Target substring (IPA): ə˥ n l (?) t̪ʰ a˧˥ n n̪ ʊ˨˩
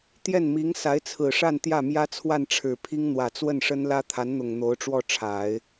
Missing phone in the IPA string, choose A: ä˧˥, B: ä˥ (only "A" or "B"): B